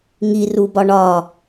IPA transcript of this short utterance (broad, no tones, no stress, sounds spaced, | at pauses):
ŋ i r u b ɒ ɳ ɒ